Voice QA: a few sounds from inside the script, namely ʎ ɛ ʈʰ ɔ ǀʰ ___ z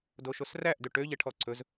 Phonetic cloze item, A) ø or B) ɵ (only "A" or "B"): B